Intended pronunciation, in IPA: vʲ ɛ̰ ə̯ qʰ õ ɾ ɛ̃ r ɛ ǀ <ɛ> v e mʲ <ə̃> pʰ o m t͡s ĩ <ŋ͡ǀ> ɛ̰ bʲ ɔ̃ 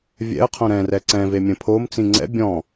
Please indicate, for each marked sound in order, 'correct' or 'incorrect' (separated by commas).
incorrect, correct, correct